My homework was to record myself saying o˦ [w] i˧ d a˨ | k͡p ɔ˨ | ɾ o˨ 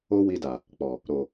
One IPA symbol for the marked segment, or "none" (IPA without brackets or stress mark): w